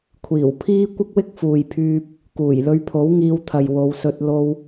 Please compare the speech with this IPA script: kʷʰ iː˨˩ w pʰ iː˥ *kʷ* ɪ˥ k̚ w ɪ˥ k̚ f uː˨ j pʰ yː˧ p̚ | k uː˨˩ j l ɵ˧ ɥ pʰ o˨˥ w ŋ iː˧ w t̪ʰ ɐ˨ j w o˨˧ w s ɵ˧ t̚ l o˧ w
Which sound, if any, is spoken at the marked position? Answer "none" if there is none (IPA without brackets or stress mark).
kʷ